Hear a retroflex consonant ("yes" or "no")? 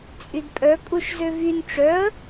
yes